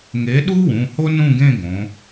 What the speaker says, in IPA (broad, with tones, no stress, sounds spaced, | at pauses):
ŋ e˨˥ ɗ u˥ w ũ˩˧˩ h o˥ n ũ˥˧ ɡ ẽ˥˧ ɡ õ˩˧